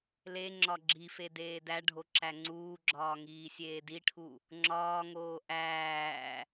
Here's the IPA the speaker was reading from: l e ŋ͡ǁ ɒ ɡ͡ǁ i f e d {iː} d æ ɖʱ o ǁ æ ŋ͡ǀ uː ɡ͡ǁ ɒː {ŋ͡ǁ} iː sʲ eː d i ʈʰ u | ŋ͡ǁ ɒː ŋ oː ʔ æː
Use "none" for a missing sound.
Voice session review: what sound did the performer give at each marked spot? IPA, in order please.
eː, ŋ

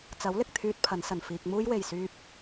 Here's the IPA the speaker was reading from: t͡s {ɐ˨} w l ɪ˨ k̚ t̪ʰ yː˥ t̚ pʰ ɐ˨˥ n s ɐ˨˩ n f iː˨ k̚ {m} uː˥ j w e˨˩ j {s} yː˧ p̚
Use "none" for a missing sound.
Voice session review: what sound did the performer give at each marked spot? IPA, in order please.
ɐ˨˥, m, s

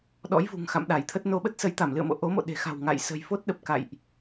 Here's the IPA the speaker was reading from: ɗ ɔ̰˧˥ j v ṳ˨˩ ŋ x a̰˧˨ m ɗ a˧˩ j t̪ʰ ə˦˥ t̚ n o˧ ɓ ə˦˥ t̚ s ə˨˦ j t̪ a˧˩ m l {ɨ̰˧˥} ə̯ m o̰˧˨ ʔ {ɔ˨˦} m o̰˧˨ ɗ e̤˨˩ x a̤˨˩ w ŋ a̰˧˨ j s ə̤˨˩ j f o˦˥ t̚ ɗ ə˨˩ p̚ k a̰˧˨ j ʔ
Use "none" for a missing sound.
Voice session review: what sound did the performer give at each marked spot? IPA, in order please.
ɨ̰˧˨, o˨˦

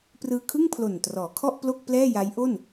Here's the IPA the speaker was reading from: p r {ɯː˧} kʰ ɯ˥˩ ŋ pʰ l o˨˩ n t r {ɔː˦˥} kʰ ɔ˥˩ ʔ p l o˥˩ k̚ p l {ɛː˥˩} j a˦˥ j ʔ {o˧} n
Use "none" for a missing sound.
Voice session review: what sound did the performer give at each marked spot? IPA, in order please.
ɯː˧, ɔː˩˦, ɛː˥˩, o˥˩

